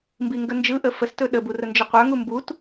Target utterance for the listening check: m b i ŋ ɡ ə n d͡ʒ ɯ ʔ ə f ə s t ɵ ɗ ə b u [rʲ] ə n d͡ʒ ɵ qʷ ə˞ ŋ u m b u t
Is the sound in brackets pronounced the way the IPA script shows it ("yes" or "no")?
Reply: no